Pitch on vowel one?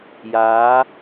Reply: rising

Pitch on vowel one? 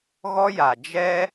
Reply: high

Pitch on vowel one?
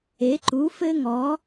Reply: rising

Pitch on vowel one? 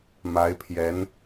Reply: rising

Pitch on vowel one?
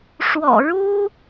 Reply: low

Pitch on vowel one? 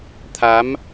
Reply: rising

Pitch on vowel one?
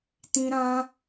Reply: high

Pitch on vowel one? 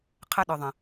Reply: high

